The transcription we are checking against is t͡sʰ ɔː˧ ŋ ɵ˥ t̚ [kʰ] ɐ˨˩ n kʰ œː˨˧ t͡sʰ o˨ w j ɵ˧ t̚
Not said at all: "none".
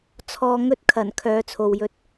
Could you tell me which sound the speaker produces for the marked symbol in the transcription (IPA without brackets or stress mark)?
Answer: kʰ